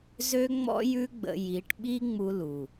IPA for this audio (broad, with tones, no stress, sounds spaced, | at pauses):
z ø˦ ŋ͡m ɔ̰˦ j ʉ˦ ɡ͡b ə̰˧ j i˨˦ ʈ ɓ i˦ ŋ͡m u˧ l u˨